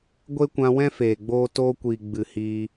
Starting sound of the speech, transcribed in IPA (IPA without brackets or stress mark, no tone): ɡʷ